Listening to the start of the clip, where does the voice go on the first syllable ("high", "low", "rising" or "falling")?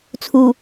low